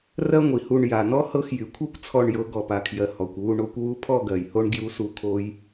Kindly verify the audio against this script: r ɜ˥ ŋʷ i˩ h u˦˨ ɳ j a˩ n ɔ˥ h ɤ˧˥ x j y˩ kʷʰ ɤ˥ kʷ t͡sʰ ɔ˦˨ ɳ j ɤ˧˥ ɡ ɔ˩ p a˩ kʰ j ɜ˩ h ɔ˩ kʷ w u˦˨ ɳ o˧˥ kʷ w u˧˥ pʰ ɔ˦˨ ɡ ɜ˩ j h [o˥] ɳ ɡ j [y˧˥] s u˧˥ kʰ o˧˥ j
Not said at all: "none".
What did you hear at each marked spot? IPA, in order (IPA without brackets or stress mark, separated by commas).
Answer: o˥, u˧˥